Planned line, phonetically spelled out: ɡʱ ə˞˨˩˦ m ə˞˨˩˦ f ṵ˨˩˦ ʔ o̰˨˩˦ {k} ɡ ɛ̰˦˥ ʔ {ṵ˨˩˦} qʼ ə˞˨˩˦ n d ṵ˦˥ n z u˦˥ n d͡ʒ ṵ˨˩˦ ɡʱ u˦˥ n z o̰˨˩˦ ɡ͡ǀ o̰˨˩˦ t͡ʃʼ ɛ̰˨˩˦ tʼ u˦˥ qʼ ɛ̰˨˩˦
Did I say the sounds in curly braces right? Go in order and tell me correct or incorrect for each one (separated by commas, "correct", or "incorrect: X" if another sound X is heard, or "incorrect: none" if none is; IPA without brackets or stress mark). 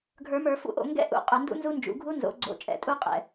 incorrect: ŋ, correct